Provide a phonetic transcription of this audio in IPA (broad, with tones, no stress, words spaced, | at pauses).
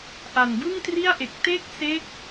ʔa˨˩nbɯ˥˩ŋtri˥˩a̯ʔe˨˩k̚ te˥˩k̚se˦˥k̚